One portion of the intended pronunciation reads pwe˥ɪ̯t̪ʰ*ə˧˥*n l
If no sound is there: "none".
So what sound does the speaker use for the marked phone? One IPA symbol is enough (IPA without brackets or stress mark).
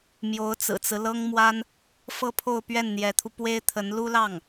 ə˧˥